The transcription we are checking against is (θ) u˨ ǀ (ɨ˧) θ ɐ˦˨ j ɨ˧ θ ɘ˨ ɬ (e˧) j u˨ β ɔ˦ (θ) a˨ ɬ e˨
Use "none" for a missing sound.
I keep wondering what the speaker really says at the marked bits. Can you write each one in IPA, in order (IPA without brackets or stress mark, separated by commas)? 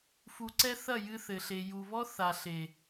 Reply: f, ɛ˧, e˨, θ